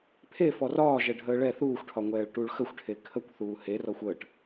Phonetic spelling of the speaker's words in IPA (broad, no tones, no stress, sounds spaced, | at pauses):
pʰ e f ɔ r ɒː ʒ ɛ ɖʱ əː ɭ ɛ θ uː xʷ ʈʰ ɒ ŋʷ ɛː ɭ ʈ u ɭ x ə xʷ ʈʰ e kʰ ə kʷ θ uː h e r ɔ xʷ əː ʈ